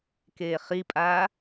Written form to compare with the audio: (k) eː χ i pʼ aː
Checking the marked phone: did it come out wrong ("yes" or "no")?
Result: no